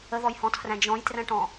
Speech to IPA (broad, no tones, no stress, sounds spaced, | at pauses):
ə ð ɔ j h ɔ̃ tʰ r æ̃ d͡ʒ ɔ̃ j t r æ̃ ʈ ɔ̃